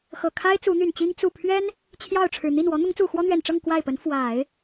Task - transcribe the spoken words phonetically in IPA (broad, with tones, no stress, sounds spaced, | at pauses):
x ɤ˨˩ kʰ a˥ ɪ̯ t͡s u˧˥ n̪ y˨˩ n t͡ɕ i˥ ŋ t͡s u˥˩ pʰ ɥ ɛ˥ n | t͡ɕʰ j ɑ˥˩ ʊ̯ ʈ͡ʂʰ ɻ̩˨˩ n̪ i˥˩ n w ɔ˧˥ n̪ ʊ˧˥ ŋ t͡s u˨˩ x w ɔ˥ n̪ ɥ ɛ˨˩ n ʈ͡ʂ ɤ˥˧ ŋ k w a˥˩ ɪ̯ p ə˧˥ n f w a˨˩˦ ɪ̯